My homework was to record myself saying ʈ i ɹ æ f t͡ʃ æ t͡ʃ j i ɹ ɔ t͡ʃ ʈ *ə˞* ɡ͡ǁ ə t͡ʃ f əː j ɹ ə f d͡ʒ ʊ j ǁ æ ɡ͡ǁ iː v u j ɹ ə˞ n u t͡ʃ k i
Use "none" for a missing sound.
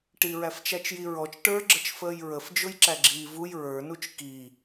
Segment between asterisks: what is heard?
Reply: ə˞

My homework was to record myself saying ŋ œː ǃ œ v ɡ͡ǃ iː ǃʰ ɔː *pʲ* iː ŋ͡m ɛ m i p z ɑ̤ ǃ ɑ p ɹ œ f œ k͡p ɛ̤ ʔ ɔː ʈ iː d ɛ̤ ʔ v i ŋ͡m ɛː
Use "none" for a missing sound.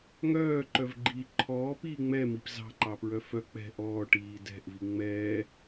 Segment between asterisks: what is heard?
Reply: p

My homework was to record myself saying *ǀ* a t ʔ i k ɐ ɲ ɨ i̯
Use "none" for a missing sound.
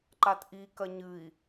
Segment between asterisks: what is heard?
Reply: ǃ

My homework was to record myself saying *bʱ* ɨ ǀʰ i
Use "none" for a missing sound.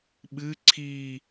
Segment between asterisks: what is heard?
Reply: ɓ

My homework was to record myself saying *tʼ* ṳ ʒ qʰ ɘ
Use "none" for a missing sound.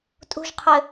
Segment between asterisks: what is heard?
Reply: tʼ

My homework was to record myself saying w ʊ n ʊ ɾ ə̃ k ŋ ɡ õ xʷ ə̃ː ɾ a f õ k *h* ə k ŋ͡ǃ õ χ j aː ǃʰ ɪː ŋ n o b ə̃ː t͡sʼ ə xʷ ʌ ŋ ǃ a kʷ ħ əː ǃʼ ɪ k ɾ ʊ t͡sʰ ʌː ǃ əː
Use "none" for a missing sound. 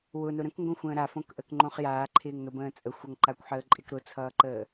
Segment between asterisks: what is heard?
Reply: ʔ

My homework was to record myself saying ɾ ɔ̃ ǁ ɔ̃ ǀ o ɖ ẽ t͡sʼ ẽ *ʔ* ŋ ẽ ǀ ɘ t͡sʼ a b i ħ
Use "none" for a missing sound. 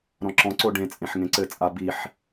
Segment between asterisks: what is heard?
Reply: ħ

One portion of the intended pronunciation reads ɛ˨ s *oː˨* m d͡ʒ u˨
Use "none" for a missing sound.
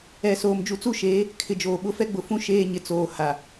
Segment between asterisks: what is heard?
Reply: oː˨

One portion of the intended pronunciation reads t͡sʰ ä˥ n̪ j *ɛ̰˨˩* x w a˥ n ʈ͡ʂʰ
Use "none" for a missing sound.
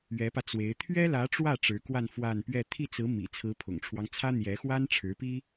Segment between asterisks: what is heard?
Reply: ɛ˧˥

